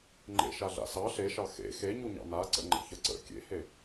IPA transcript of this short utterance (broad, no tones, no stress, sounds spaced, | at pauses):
ŋ͡ǃ ḛ ʃ a ɮ a̰ s ɑ ɬ e ʃ ɑ x ḛ x e ɲ u ɲ ɑ̰ n a ǀ ə̰ ŋ͡ǃ ə̰ ç ə ǀ ə̰ kʲ ḛ h e